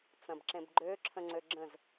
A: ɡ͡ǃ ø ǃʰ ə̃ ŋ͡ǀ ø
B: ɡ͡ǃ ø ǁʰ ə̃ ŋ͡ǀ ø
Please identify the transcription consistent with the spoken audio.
B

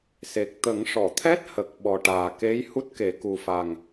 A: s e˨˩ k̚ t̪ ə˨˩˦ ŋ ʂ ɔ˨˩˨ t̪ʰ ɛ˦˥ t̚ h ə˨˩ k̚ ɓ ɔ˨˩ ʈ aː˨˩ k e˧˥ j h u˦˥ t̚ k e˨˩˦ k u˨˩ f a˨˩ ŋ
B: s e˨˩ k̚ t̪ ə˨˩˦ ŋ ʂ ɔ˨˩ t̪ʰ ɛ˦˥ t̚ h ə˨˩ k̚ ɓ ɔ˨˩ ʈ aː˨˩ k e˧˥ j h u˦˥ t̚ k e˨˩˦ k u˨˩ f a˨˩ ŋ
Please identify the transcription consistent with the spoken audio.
A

